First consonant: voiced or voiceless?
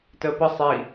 voiceless